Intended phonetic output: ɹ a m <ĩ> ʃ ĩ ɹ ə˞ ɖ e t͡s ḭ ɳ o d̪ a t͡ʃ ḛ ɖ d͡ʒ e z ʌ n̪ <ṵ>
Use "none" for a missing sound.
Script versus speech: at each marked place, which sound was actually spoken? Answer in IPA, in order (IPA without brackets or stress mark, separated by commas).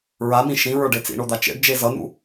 ĩ, ṵ